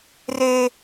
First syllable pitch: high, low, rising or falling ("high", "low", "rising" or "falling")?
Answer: high